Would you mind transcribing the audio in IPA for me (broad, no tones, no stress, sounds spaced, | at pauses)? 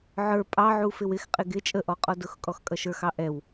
ʕ ə˞ pʼ ɑ ʕ u f ɪ w ɪ x qʼ ɪ ɡ ɪ t͡ʃʼ ə ʔ ɔ qʼ ɔ d ʊ x kʼ ɔ x kʼ ʌ ʃ ə˞ x ɑ ʔ ɛ w